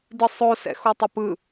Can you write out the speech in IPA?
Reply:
dɯsˤo sɛ̰xotˤɘpɯ

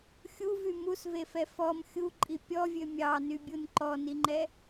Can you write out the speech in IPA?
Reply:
xʲuvy musvefɛ fɔm xʲuǃʼi pʲɔvʲø mʲɑnybʲun ǃɔniŋ͡ǃɛ

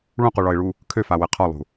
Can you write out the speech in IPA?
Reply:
ɭũquɭɒɪ̯ɭu | kʰøfawɛ qʰɒlˠṳ

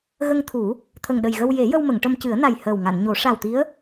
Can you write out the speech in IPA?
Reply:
ɣə˧ŋt̪ʰu˨˩˦ | t̪ʰə˨˩ŋɗə˨˩jɣə˧w je˨˩˦jə˧w mə˨˩˨ŋʈə˧mcɨ˨˩˦ə̯na˨˩j həː˨˩wŋa˨˩˨nɲo˨˩˦ ʂa˨˩wt̪i˧˥ə̯

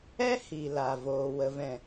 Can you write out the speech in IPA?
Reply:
ɛ˦hi˨ la˨voː˨ wə˨vɛ̃˨

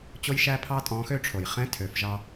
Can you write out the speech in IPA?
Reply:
t͡ɕo˥jʃæ˥pʰɑ˥tʼɔ̃˧˥ xø˥ʈ͡ʂʰo˩jχɛ̃˥ tʰø˩˧fʒɑ˧

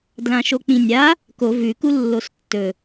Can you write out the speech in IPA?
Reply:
dlãʃok͡pĩnʲa | ko vʉ kulːostːɵ

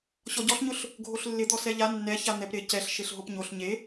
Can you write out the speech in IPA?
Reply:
ɕɔɟɔɬɲʊɬ | ɡʱoɬlːɪd̪ɔ sɛʎa nːɛ çan̪ɛp ɾɪ cɛɬ ʃeɬɦopɲoɬ ɲe

